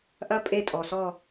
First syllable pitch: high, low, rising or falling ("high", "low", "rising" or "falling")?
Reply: rising